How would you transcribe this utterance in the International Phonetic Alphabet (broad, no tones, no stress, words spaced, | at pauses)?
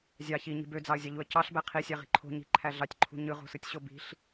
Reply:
zʲɑ çiɲi̤ bød͡zɑə̯zʲɑʎuə̯ cɑɬbæ qʰisʲæʁi̤ ǃʰo̤ɲi̤ǃʰæ ɮɑtʲǃʰṳ ɲɯʁo̤sɯtʲɕo bi̤ɬ